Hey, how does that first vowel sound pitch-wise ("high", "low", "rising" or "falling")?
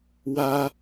high